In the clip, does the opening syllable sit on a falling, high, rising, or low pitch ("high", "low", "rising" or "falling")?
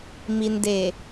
low